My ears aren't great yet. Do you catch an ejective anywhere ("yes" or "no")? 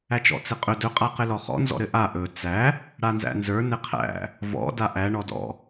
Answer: yes